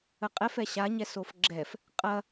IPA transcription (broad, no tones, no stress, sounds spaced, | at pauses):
ə qʼ ɛ f ɛ ɕ a ɲ ɛ s o f ɡ͡ǁ ɛ f | qʼ ɐ